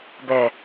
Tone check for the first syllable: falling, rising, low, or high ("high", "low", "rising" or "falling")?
low